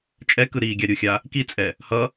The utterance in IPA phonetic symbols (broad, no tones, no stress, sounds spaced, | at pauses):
t͡ʃʼ ɛ k ɯ ɾ iː ɡʲ a ɾʲ u xʲ a | k i t͡sʼ ɛ | h ʌ